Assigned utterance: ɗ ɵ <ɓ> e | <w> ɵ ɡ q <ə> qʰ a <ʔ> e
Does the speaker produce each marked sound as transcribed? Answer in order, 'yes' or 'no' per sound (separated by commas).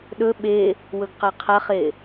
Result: yes, yes, no, no